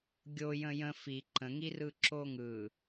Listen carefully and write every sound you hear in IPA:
ɡʲo jə̃jə̃ fi ǃə̃ŋirɯ ǁoŋɯ

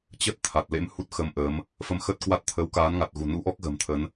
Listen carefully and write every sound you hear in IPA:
t͡ɕə˦˥t̚ t̪ʰa˨˩t̚ lḛ˧˥m hu˦˥t̚xə˧mʔəː˨˦m | fə˧mxə˦˥t̚kwa˦˥t̚ t̪ʰəː˨˦wkaː˨˦nŋa˨˩t̚ ɣṳ˨˩nṵ˧˥ʔɔ˦˥k̚ ɣə̤ː˨˩mt̪ʰə˨˦n

